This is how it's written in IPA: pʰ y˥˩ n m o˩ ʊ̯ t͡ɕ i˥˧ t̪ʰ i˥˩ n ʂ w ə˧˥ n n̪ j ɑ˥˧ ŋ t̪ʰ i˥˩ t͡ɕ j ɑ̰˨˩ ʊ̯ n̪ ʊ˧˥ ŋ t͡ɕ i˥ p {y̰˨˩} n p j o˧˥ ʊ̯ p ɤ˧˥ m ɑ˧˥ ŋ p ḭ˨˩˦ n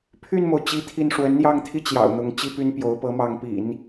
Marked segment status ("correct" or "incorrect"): incorrect